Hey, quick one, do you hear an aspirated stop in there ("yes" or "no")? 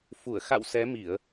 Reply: no